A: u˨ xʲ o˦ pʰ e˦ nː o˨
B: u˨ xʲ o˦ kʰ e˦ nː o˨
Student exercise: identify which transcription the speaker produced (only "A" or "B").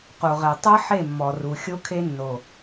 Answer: B